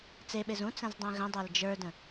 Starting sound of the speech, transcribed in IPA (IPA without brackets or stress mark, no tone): t͡s